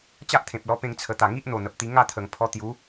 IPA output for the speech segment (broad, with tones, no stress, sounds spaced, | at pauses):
t͡ɕ a˦ ʔ t̪ʰ ẽ˨ p̚ l ɔ˧ p ẽ˧ ŋ t͡sʰ ə˨˩ t̪ a˨˩ ŋ i˦ ʔ n̪ o˨˩ n̪ ə˨ p̚ t̪ i˧ ŋ a˦ t̪ʰ ə˨˩ ŋ pʰ ɔ˧ t̪ j u˨˦